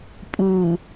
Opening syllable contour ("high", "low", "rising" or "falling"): low